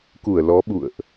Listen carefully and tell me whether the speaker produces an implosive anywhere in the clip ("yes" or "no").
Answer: yes